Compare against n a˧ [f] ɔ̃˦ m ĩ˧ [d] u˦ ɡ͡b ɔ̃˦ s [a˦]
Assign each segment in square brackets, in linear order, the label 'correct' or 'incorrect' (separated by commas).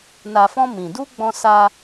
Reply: correct, correct, correct